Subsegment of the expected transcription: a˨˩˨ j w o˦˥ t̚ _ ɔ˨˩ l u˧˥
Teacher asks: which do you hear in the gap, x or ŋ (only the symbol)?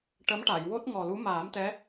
ŋ